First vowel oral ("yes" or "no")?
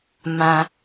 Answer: no